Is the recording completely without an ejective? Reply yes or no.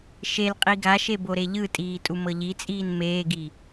no